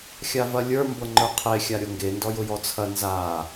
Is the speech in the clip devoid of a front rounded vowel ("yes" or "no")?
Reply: yes